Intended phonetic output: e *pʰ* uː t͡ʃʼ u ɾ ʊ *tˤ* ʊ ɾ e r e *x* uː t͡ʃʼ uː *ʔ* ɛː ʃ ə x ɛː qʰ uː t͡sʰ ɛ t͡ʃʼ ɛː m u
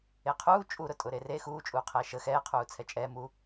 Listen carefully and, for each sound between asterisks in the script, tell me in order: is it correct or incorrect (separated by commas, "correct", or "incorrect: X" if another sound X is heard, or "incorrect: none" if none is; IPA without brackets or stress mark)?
incorrect: qʰ, incorrect: tʼ, correct, incorrect: qʰ